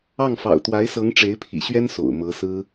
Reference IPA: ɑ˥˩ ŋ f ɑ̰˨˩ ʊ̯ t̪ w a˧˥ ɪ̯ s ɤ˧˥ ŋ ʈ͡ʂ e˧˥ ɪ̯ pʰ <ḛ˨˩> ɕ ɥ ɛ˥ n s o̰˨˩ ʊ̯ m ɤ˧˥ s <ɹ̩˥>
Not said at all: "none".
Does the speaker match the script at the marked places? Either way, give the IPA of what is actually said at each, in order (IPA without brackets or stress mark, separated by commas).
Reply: ḭ˨˩, ɹ̩˥